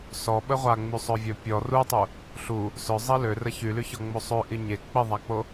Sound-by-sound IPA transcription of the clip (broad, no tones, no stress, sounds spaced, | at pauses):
s ɔ ɓ ə ʁʷ a ŋ͡m y sˤ œ vʲ œ pʲ ɔ r u tˤ u | ɬ u | s œ zˤ i l ø r ə ç y l y ç ɔ ŋ͡m o sˤ ø ʔ i ɲ e k͡p i ðˤ a k͡p o